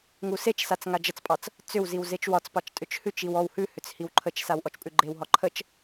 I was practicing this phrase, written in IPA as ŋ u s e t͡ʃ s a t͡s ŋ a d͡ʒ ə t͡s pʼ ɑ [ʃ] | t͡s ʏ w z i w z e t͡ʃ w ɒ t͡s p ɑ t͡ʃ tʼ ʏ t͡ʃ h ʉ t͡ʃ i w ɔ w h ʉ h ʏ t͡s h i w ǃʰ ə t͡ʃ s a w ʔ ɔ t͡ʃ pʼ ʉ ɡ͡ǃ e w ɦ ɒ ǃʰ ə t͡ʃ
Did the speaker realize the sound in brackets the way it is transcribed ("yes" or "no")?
no